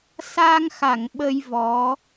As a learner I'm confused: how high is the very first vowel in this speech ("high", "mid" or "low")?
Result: low